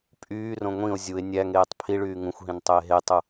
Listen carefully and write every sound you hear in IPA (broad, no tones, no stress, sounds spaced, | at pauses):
pʼ yː r õ ŋʷ ĩ o̯ zʲ u e̯ nʲ æ ŋ eː tˤ pʰ i ɭ yː ŋ ũ xʷ ɦ ĩ n tˤ ø e̯ ɦ e tˤ u